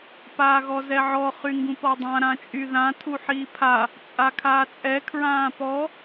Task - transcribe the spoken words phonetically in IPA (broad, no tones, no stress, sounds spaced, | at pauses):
p aː ɣ ɔ z ɛ ʕ ɔ χ y ŋ ɡ ũ p ɔ dˤ ã ɾ ã t͡ʃʼ y ð ã tʰ u ħ iː pʰ a | t͡sʼ a kʰ aː t͡sʼ ɛ kʰ ɹ ãː p ɔ